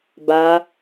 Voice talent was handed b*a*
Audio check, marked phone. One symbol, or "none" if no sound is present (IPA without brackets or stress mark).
a